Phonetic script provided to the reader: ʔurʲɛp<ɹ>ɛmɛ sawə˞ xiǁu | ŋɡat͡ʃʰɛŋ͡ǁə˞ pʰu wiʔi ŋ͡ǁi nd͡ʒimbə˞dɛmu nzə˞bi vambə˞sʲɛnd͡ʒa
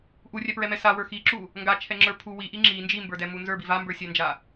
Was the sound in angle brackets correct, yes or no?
yes